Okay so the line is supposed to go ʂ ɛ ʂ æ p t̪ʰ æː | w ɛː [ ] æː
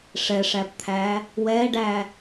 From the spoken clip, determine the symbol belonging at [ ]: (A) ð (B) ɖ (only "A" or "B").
B